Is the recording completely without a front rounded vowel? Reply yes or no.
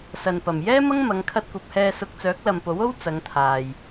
no